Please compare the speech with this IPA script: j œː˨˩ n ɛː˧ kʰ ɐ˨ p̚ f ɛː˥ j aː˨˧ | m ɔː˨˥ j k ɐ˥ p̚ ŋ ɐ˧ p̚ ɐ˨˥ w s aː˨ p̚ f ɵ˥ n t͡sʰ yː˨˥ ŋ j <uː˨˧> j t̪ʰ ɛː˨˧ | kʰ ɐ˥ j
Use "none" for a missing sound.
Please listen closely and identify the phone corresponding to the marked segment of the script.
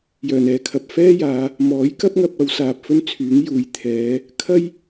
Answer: uː˨˥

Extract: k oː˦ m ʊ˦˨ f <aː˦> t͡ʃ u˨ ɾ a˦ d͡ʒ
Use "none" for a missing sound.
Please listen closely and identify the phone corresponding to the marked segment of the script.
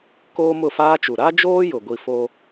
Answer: aː˦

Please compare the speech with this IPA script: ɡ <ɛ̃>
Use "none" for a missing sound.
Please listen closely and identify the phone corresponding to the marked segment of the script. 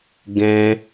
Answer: ɛ̃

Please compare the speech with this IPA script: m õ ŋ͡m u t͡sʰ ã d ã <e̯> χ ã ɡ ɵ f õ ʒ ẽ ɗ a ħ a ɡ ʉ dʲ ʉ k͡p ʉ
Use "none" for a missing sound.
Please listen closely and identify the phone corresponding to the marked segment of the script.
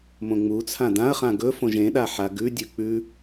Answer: ɐ̯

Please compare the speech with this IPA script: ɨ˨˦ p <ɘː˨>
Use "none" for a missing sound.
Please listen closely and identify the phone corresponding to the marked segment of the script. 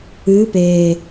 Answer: eː˨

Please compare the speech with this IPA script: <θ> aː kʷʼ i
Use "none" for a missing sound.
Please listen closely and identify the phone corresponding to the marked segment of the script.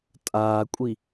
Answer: tʼ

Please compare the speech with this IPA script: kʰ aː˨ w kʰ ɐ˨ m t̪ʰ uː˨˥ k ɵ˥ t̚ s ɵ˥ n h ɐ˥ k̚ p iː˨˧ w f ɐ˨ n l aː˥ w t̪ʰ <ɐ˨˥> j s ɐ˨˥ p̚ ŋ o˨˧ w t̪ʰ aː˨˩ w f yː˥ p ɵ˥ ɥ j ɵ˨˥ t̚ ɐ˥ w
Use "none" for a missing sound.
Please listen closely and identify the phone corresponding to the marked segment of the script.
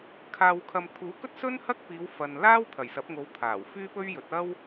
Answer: ɐ˨˩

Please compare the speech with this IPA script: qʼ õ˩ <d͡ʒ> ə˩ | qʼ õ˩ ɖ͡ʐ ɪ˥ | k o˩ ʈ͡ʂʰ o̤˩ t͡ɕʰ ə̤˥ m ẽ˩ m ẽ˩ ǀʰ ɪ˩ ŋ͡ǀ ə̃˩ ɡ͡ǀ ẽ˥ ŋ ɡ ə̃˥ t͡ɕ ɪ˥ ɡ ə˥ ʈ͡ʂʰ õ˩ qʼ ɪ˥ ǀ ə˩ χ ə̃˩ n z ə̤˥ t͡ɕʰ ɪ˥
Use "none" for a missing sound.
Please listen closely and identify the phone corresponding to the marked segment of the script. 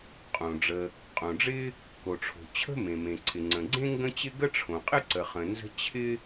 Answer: ɖ͡ʐ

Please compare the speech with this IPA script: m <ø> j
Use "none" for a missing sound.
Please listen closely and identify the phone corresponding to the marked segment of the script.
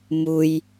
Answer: u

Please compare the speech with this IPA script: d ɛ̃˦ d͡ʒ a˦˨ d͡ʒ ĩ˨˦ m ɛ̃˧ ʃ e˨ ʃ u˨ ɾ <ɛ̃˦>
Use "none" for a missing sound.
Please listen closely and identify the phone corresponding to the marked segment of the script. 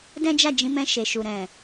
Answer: ɛ̃˨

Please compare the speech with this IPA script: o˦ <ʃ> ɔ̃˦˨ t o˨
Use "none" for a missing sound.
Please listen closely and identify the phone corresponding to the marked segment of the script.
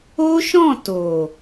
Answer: ʃ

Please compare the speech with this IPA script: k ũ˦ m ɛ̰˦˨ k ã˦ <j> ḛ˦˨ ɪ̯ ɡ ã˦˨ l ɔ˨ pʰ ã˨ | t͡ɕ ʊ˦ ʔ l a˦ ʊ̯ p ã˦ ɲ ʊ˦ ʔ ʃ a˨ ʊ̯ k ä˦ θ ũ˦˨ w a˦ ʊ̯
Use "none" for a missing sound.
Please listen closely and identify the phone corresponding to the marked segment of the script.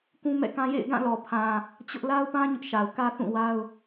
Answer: j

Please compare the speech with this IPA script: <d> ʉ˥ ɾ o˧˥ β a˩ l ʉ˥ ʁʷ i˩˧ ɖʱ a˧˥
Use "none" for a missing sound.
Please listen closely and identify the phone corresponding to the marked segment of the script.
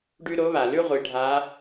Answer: ɖ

